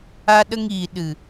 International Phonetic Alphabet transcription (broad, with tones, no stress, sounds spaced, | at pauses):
a˧ ɗ ə˧ ŋ iː˨ ɗ ɨ˨